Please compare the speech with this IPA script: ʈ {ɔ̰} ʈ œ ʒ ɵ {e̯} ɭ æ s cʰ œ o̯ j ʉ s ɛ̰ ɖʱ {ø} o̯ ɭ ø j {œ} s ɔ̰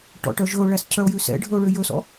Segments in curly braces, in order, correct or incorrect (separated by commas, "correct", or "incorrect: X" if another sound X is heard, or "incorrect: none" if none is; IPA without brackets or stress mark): correct, incorrect: o̯, incorrect: ɵ, incorrect: ɵ